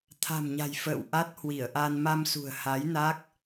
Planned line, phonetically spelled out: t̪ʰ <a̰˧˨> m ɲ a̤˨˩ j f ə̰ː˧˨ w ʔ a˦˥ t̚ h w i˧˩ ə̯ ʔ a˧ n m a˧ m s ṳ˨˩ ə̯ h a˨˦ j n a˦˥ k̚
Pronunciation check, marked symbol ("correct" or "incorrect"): incorrect